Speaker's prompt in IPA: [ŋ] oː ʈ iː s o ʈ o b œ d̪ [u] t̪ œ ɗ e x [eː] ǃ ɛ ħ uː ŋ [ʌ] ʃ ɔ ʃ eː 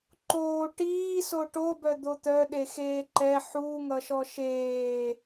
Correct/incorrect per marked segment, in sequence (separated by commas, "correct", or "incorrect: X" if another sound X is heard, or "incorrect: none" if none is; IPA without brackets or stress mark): incorrect: ǃ, incorrect: o, correct, correct